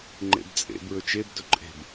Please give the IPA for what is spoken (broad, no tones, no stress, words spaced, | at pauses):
ŋ͡ǃḛbt͡sʼḛ bɹɵt͡ʃeb dɵǃʼe̤b